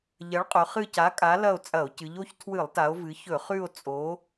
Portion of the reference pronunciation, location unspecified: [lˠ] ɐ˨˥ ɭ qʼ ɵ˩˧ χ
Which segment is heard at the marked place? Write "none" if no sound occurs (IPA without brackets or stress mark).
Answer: ʎ